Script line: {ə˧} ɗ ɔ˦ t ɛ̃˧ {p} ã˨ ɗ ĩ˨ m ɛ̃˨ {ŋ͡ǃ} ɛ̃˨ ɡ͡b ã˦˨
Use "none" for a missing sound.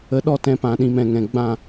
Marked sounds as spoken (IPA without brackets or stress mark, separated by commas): ə˧, p, ŋ